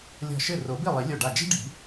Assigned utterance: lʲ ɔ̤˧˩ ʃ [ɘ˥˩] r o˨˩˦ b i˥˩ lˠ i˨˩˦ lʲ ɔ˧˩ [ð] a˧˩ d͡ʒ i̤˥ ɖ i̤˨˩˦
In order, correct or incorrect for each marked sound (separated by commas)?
correct, incorrect